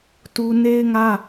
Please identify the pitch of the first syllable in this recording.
high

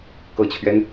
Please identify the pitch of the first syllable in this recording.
low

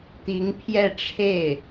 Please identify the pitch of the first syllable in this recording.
rising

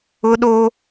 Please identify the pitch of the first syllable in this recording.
high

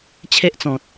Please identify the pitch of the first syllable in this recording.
high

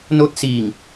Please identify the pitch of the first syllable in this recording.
falling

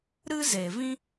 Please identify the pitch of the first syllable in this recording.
high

